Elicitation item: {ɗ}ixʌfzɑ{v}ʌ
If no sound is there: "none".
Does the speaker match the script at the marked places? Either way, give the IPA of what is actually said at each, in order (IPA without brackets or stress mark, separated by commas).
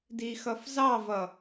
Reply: d, v